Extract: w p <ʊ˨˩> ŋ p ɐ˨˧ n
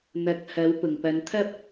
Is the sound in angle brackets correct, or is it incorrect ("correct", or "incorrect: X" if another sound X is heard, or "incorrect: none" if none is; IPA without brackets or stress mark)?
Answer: correct